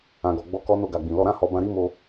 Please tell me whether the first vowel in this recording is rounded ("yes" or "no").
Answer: no